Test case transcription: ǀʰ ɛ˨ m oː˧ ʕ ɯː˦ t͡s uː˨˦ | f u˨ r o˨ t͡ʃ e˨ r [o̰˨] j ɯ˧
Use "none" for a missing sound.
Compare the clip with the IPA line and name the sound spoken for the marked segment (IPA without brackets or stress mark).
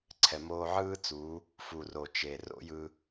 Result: o̰˦